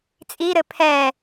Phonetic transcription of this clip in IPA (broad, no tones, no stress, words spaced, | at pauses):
t͡sʼiɾɘ pʰɛ